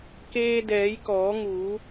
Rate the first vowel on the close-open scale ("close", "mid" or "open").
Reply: mid